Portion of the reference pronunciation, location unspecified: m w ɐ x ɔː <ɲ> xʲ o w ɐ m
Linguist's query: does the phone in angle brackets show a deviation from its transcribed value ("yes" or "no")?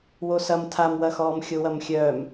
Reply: yes